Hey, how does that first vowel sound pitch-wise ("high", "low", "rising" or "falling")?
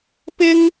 high